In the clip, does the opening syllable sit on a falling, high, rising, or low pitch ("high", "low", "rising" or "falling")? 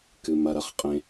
low